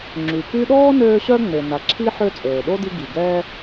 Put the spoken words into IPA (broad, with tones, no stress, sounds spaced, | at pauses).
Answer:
ŋ͡ǁ y˩ k y˦ ɗ ɔː˥ n øː˦ ɕ œ˦ ŋ͡m e˩ n a˩ ǁʰ i˦ ħ ø˦ t͡sʼ øː˩ ɗ o˥ d i˦ ɡ i˩ ɡ ɛ˦